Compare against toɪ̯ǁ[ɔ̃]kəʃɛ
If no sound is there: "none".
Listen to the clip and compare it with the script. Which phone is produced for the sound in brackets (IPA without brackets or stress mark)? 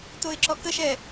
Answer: ɔ